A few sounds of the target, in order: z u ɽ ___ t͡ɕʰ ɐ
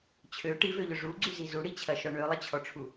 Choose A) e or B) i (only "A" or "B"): B